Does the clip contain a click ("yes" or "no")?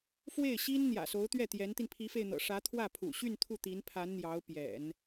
no